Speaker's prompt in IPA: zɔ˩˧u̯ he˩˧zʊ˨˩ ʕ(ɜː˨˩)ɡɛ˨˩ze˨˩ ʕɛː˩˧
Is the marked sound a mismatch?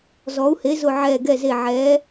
yes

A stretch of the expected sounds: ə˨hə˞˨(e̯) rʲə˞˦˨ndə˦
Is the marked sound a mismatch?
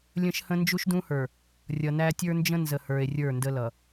no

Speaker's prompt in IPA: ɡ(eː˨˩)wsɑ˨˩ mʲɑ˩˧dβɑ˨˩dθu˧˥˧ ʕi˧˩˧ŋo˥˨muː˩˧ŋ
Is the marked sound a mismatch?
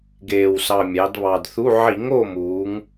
no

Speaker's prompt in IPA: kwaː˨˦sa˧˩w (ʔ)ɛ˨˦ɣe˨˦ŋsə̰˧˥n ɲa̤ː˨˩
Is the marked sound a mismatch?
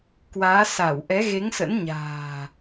no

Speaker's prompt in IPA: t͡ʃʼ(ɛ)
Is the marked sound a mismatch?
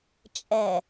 no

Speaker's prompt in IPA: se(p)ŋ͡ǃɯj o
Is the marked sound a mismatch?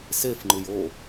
yes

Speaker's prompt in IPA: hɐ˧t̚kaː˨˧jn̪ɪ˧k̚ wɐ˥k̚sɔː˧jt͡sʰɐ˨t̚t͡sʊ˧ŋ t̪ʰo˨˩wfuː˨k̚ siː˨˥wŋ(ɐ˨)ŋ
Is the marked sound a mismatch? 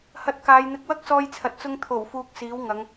yes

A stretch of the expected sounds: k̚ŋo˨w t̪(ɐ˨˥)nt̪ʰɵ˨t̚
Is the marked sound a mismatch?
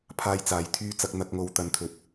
yes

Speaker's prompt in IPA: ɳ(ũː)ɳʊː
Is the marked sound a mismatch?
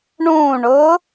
no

